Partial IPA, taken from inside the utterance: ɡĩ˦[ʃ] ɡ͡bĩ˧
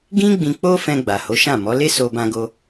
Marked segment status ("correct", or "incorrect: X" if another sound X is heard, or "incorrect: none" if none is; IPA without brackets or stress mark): incorrect: none